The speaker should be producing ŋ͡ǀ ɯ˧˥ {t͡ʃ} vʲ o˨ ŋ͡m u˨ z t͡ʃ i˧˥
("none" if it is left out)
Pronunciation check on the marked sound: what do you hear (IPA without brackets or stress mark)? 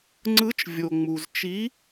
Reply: t͡ʃ